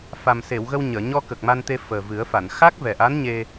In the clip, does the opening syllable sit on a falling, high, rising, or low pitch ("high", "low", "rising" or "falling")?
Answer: low